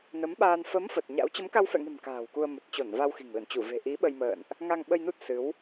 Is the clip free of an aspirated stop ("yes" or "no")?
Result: yes